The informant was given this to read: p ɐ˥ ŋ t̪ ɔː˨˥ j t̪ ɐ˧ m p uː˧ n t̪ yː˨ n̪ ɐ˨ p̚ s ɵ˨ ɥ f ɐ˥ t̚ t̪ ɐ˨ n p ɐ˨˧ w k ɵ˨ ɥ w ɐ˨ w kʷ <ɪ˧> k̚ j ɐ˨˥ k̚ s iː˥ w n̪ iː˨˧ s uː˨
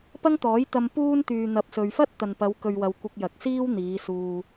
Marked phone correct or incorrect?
correct